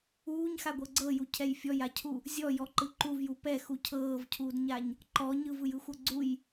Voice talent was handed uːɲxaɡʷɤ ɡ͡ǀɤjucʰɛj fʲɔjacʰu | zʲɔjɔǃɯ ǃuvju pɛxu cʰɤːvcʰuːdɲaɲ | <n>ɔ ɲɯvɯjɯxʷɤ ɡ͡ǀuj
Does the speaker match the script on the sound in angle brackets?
no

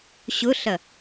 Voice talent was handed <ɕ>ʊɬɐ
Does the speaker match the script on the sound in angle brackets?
yes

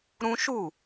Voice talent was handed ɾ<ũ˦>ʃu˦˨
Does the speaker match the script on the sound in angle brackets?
yes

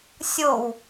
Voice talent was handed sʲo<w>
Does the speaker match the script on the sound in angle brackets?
yes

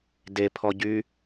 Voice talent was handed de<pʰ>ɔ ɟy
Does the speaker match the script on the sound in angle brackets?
yes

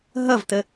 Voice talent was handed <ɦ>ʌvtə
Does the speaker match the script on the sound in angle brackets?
yes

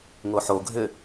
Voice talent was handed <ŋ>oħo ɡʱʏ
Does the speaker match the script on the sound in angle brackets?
yes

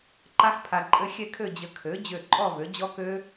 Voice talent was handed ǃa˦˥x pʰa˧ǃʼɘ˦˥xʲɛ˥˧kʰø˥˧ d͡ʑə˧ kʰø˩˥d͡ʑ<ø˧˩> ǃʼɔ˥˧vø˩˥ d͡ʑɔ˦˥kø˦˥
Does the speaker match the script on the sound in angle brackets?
yes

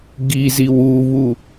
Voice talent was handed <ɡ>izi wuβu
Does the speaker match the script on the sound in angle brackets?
yes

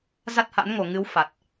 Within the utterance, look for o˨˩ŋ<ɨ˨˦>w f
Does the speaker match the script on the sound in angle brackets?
yes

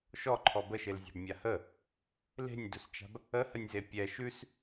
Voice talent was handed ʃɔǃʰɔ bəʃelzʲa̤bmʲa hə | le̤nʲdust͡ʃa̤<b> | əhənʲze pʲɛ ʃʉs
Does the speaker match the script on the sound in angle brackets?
yes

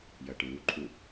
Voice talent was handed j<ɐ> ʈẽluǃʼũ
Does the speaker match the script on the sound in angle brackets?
yes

